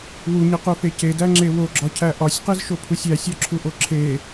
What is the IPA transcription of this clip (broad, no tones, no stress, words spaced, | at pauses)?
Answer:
wuɲiqufe cedæŋ͡ǁe woɡ͡ǁɒcʰæ ʔɒsʲqizʃopʰusʲ æsʲɒǁʰuʔo ǁʰe